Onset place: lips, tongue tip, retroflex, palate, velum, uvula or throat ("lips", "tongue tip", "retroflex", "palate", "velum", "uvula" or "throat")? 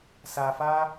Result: tongue tip